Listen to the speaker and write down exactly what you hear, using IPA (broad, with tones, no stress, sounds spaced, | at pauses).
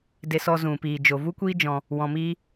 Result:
d e˧ s ɔ˧ z ũ˨ p iː˨ d͡ʒ o˨ v u˦ kʷ iː˦ d͡ʒ ɔ̃˧ | w ɔ̃˧ m iː˦